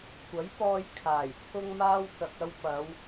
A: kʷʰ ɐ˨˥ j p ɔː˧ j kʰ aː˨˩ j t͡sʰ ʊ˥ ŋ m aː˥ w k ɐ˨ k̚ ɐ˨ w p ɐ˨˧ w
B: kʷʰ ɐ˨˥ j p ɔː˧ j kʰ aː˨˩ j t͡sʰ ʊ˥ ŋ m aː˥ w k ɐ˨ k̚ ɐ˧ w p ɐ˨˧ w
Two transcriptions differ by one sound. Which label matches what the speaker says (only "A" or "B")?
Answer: B